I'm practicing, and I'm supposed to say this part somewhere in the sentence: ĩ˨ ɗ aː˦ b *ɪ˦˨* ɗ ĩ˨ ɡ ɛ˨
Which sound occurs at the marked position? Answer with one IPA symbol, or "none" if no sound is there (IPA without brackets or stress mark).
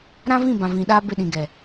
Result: ɪ˦˨